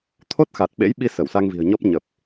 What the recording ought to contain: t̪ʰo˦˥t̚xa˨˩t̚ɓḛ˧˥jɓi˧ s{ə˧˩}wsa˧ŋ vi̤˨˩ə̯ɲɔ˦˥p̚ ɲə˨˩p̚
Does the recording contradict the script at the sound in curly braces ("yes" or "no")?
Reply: no